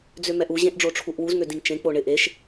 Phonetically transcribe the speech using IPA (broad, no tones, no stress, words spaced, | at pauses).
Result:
d͡zømɛʔu ʑẽʔɖ͡ʐoʈ͡ʂʰuʔwuz ŋødĩŋt͡ʃẽ k͡poɳɪ ʔeʃ